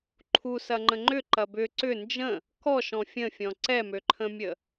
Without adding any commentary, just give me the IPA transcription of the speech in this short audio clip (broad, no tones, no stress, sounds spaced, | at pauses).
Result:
ǃʰ u s ɐ ŋ͡ǃ ə̃ ŋ͡ǃ ʏ ǃ ɐ b ʏ ǀ ʏ n d͡ʒ ə̃ | k ɔ ʃ ɔ̃ fʲ ə̃ fʲ ɔ̃ ǀ ɛ m ø ǃʰ ə̃ mʲ ə